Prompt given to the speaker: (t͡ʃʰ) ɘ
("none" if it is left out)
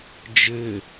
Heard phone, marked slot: d͡ʒ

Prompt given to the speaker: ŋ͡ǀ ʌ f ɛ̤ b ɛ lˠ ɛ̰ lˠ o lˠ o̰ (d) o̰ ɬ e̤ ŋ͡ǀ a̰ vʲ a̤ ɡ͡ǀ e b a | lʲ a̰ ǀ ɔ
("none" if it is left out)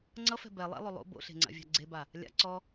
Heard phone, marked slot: b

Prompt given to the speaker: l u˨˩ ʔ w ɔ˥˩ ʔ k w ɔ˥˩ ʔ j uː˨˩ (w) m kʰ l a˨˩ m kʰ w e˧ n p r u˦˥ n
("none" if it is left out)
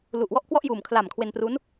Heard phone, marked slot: none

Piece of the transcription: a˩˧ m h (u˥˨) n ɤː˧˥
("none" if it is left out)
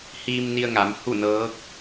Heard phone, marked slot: u˥˨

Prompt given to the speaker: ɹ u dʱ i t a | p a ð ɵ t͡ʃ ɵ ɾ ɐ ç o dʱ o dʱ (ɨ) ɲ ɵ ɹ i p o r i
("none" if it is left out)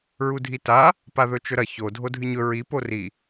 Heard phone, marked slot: ɨ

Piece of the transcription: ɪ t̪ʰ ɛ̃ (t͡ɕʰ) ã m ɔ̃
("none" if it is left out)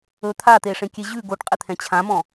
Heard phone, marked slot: t͡ɕʰ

